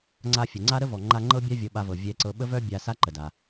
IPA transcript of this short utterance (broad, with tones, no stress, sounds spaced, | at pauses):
ŋ͡ǀ a˧ fʲ ə˩ ŋ͡ǀ a˥ ɾ ə˥ v ɔ˩ ŋ͡ǃ a˧ ŋ͡ǃ ɤ˥ bʲ a˥ vʲ ɤ˧ ɓ a˧ v ɤ˩ vʲ ɛ˧ ǀ ɤ˧ ɓ ə˥ v œ˥ bʲ a˧ s a˥ ǃ ə˩ d a˩